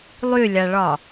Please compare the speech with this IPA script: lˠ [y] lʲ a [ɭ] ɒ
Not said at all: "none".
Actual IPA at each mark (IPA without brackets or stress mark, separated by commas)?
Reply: y, ɭ